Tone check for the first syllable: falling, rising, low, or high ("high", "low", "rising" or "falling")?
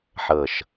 low